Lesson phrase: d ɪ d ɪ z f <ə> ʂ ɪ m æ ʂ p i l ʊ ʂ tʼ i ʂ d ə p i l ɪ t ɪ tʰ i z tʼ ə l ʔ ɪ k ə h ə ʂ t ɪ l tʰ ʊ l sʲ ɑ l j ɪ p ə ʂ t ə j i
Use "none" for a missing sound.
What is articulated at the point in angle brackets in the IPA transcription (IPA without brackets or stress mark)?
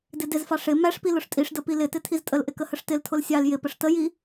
ɑ